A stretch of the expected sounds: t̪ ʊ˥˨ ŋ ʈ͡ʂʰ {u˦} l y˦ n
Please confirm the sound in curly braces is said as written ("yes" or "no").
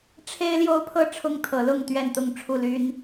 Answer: no